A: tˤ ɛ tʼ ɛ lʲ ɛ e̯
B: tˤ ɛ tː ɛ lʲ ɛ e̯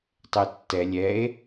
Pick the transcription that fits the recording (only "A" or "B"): B